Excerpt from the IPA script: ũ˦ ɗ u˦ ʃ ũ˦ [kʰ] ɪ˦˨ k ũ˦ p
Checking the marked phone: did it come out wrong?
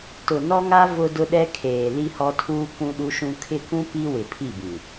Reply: no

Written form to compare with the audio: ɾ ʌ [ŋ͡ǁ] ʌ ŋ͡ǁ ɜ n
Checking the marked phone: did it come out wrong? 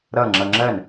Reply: no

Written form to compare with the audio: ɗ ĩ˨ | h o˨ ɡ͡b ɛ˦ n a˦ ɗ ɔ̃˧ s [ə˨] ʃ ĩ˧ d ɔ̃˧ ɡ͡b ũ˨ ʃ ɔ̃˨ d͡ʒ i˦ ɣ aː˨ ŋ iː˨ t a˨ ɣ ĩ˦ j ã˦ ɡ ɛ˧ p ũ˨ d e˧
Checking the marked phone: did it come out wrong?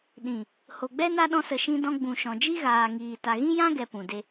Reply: no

